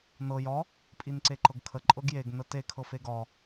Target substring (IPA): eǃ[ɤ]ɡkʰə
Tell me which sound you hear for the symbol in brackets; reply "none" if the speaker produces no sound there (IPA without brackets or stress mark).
ɤ